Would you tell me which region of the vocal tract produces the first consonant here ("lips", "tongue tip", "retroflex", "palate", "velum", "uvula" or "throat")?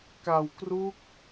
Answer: velum